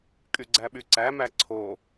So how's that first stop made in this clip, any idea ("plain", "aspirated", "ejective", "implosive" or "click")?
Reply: ejective